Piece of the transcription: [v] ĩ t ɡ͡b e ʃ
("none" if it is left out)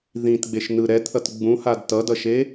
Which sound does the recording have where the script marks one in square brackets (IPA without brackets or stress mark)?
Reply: ð